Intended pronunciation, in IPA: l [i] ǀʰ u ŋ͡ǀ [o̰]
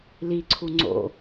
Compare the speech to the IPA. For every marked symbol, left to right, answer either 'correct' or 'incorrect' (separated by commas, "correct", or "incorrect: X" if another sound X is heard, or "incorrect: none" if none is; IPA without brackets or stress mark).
correct, correct